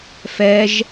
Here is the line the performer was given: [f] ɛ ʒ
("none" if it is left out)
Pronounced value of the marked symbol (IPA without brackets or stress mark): f